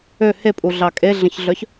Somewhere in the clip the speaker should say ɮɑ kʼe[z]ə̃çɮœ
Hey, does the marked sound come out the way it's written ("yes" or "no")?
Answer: no